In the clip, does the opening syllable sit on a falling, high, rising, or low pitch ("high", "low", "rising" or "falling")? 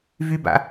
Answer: high